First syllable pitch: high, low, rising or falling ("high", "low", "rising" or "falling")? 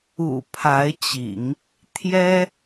low